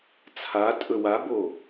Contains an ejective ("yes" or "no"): yes